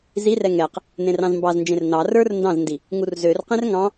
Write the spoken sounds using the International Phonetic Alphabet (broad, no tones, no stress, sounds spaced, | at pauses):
z i r ɛ ŋ ɛ q | n ẽ r ɑ̃ z m b ɑ z n d͡ʒ ẽ r n ɑ r ə˞ r n d ɑ̃ z n d i | ŋ u r z ø r q ẽ r ŋ ɑ̃